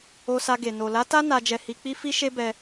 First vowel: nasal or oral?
oral